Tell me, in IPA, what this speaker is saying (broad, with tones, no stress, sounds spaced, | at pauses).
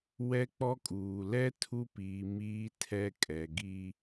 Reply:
w ɛ˦ k͡p ɔ˦ kʼ uː˨ l ɛ˦ tʰ u˦ p iː˨ m iː˦ tʰ ɛ˦ kʼ ɛ˨ ɡ i˦